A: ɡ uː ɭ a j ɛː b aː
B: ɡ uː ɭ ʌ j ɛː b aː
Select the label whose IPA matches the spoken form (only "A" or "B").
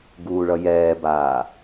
B